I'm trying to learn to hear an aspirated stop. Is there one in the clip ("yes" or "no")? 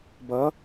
no